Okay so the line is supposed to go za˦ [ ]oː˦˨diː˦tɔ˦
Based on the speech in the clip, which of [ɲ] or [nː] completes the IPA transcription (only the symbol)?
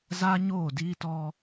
ɲ